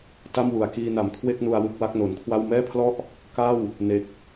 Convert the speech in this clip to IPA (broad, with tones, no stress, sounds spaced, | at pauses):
t a˥˩ m w u˨˩ a̯ k iː˧ n a˨˩ m kʰ w e˥˩ k̚ n u˧ a̯ w ɯ˥˩ k̚ w a˦˥ k̚ n o˩˦ n kʰ w a˥˩ w m ɛː˥˩ pʰ l ɔ˥˩ ʔ | k a˥˩ w | n e˦˥ k̚